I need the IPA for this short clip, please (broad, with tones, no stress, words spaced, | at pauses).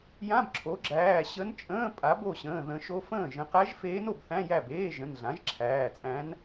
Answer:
jã˧˥˧bǁʰo˩˥ɡ͡ǁæː˩˧˩ ɕə˧˥nt͡ʃʼə̃ː˧˥˧ pʼa˩˥bo˥˩ɕə̃ː˩˧˩ ðə̃˨˩˦ʃo˧˥fə̃ː˥˩ ʒə̃˨˩˦qæ˧˥ʒfeː˧˥n o˥˩bθæ̃˧˥˧ jæ˥˩beː˧˥˧ʒə̃˩˧˩n ɮã˩˥ʒǁʰæː˩˧˩t͡sʼæ̃˧˥n